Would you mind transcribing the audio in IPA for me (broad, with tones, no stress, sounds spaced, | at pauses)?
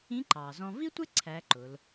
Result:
ĩ˧˥ ǃ ɑː˩ z ɔ̃˧ v i˥ tʷ ɪ˥ ǀʰ æ˧˥ ǃ ʊ˩˧ l